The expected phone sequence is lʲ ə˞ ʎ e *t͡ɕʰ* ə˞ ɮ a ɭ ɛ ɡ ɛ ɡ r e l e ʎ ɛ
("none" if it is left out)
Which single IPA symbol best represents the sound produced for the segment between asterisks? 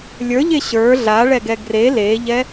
ɕ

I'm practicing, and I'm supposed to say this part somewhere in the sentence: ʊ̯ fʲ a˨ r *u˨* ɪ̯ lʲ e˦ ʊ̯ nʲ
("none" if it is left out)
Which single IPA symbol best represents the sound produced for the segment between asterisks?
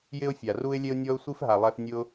u˦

